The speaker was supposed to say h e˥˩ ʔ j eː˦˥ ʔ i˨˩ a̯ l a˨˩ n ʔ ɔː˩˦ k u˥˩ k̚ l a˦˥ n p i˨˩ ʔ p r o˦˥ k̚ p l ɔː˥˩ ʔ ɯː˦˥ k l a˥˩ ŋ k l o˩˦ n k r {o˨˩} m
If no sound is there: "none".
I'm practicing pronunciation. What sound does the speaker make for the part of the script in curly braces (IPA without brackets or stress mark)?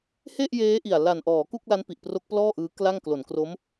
o˦˥